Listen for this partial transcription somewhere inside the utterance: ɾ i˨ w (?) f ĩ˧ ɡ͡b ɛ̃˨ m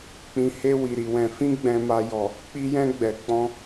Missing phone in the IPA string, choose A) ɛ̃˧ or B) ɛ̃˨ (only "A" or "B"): B